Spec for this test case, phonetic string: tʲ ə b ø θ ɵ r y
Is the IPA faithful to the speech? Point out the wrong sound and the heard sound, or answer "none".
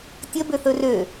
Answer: y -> ø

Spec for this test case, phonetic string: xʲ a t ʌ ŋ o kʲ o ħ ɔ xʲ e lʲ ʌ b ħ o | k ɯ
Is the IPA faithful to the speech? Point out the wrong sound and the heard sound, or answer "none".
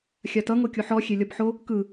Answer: none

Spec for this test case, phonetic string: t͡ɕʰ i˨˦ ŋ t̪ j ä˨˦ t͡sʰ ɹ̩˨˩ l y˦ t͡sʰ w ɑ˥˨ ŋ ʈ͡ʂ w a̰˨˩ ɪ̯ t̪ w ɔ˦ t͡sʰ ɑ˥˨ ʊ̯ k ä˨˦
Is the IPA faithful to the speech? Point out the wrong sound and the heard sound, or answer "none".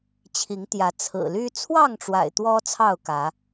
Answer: none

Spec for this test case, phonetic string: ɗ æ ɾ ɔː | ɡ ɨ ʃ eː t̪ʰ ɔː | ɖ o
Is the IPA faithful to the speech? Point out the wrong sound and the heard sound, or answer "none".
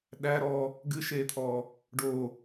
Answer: none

